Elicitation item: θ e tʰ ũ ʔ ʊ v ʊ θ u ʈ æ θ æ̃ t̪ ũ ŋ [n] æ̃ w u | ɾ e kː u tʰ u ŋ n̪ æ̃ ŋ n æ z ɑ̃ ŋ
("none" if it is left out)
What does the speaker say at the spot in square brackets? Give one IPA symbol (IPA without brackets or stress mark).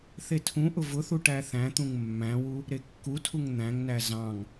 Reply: mː